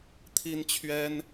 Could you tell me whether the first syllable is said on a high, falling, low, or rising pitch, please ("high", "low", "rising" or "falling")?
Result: high